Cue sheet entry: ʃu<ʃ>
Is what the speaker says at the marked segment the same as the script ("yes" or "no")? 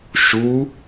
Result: no